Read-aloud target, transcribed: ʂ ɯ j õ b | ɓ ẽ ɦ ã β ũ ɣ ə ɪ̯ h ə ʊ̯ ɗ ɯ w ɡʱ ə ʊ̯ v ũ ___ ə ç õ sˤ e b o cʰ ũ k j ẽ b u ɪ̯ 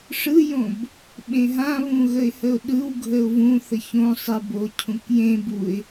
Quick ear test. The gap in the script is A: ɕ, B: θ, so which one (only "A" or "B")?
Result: B